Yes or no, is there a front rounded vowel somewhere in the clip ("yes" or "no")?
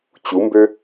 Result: yes